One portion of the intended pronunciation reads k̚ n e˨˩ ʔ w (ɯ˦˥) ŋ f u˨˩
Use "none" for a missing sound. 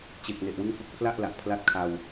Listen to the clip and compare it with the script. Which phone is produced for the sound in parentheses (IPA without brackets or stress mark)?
ɯ˦˥